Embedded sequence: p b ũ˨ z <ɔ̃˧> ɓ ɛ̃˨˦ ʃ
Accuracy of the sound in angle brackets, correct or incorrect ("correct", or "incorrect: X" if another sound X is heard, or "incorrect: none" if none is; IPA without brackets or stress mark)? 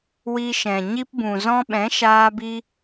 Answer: correct